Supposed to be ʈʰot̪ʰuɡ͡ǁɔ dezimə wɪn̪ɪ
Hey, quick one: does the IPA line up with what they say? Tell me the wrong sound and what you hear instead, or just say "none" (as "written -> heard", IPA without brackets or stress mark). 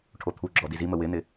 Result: e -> i